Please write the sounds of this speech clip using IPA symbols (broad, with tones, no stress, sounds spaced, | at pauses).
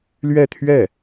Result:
l ɥ ɛ˥˧ t̪ʰ ɥ ɛ˥˩